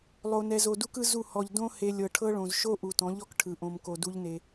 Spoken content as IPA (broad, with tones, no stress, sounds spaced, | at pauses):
lˠ o˨ n ɛ˨ z o˨ d u˦ k ɯ˦ z u˦˨ h ɔ˨ ʎ d õ˦ h e˦ lʲ ɤ˨ ʈʰ ɤ˦ ɭ õ˨ z ʃ o˦ ʔ u˨ t ɔ̃˨˦ ʎ ɔ˦ k ʈʰ ɯ˨ ʔ õ˨ m k o˨ d u˦ ʎ n e˦